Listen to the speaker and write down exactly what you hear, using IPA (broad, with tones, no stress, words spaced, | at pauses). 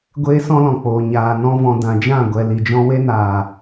ɡʷeː˦sɔ̃˦lɔ̃˨k͡poː˨ ɲaː˨ nɔ̃˧vɔ̃˨ dã˨d͡ʒã˦˨ ɡʷɛ˨ li˨d͡ʒɔ̃˧ we˦naː˨